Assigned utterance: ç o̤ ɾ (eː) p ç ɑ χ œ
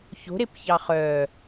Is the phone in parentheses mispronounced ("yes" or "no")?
yes